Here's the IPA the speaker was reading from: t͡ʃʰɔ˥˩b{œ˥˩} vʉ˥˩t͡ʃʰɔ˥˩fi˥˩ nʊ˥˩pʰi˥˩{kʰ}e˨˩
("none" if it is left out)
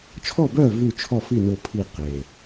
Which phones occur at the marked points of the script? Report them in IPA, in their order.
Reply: œ˥˩, q

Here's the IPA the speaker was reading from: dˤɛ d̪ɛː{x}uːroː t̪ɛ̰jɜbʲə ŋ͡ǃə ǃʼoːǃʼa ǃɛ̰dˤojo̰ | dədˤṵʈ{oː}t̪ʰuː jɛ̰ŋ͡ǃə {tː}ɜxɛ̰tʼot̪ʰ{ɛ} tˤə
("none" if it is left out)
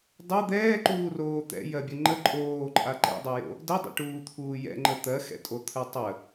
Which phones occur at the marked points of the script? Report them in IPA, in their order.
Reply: ǃ, uː, t̪, ɜ

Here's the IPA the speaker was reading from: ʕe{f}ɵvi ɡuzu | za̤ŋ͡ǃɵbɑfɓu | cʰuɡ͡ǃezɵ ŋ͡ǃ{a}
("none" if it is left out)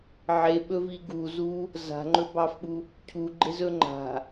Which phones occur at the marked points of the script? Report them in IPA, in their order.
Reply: ɓ, a̤

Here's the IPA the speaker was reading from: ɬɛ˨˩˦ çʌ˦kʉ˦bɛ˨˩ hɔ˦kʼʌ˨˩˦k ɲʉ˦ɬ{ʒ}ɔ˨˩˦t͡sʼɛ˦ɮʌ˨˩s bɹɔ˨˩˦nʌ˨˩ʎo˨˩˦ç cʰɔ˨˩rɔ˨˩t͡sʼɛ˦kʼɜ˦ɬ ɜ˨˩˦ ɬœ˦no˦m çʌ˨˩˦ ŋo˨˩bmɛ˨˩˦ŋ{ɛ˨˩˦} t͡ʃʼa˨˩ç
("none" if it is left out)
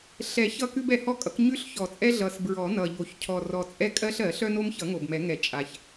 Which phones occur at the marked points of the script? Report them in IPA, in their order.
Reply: ç, ɛ˨˩˦

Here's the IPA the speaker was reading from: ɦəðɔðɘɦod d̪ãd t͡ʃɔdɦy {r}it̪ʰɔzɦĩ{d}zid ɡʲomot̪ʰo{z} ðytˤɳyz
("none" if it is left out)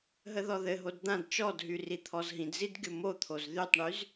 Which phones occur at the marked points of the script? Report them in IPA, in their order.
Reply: r, d, z

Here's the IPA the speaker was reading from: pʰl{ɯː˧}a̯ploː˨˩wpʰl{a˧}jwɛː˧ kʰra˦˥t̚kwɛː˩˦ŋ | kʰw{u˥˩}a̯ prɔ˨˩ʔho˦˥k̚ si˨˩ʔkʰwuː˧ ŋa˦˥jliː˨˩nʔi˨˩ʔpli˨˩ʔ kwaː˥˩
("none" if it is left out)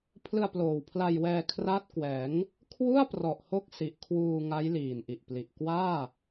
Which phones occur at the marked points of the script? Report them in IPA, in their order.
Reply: ɯ˧, a˧, u˥˩

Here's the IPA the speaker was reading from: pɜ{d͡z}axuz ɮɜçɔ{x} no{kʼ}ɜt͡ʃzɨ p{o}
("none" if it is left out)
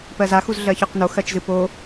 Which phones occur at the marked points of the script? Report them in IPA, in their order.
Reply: z, q, x, o

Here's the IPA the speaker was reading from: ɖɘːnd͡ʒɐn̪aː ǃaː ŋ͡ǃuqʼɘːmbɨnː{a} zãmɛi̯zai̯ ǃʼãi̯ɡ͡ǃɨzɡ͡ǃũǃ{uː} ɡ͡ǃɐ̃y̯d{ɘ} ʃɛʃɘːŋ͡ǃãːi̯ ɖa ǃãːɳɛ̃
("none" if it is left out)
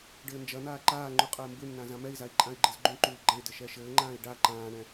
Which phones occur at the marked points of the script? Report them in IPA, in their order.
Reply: ã, uː, ɘ

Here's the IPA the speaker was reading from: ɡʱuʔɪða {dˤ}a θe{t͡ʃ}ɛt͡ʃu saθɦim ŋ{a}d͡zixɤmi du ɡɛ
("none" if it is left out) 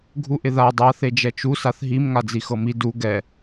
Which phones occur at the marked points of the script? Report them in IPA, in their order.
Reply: dˤ, d͡ʒ, a

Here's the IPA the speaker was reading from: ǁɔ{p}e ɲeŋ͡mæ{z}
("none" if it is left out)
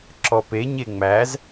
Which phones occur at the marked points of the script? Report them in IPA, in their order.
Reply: p, z

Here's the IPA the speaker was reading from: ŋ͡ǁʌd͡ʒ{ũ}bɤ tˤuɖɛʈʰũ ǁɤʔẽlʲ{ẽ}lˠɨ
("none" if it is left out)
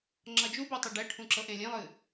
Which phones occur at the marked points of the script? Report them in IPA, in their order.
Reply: u, ẽ

